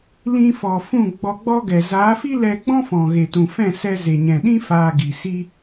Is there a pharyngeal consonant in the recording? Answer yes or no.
no